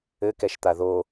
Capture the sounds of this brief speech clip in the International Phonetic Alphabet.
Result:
ɘ k ɛ ʃ t̪ a ð o

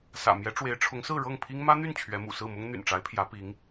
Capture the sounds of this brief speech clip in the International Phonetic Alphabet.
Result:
s ä̰˨˩ m j ɛ˧˥ ʈ͡ʂ w e˧˥ ɪ̯ ʈ͡ʂʰ ʊ˧˥ ŋ s ɹ̩˥˧ ɻ ɤ˥˩ ŋ pʰ i˥ ŋ m ä˥ n̪ y˥˩ n t͡ɕʰ ɥ ɛ˧˥ m ṵ˨˩ s ɹ̩˥˩ m ʊ˥ ŋ n̪ y̰˨˩ n ʈ͡ʂ a˧˥ ɪ̯ pʰ j ä˧˥ p i˧˥ ŋ

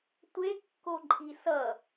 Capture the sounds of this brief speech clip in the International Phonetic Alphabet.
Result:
tʷ e kː o ǃʼ i s ʌ

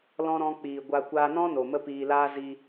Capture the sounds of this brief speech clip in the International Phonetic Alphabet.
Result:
l ɔ̃˧ ɾ ɔ̃˧ k͡p iː˨ ɡʷ a˧ kʷ aː˧ n ɔ̃˦ n o˨ m ə˦ p iː˧ l aː˦ z i˧

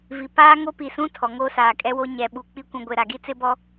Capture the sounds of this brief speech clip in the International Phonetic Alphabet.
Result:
v i˨ p aː˦ ŋ o˦ p i˨ s ũ˦ tʰ ɔ˨ ŋ oː˦ s aː˨ kʼ ɛ˦ w o˦ ɲ ɛ˨ ɓ u˨ k͡p i˦ kʷ ũ˨ ɡʷ e˨ ɾ a˨ ɡ i˦ t͡s ɪ˦ b ɔ˦

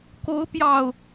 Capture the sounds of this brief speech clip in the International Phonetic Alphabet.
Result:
k o˨˦ ʊ̯ p j ɑ˨˩ ʊ̯

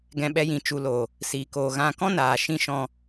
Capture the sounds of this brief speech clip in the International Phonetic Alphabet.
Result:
ɡ ɛ̃˧ ɓ ɛ˧ j ĩ˨ t͡ʃ u˨ l o˨ | s iː˨ k oː˨ ɣ ã˧ k ɔ̃˦ n aː˨ ʃ ĩ˧ ʃ ɔ̃˧

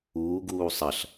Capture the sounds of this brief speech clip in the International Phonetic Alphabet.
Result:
uː ɡ uː sˤ ɐ ɬ

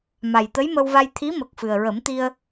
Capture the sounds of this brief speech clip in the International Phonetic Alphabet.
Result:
m a˨˩ j t̪ ə˧˥ j m ə˧ w v a˧ j t̪ʰ i˧˥ m ə˨˩ k̚ f ɨ˨˩ ə̯ ɹ ə˨˩˦ m t̪ i˧ ə̯

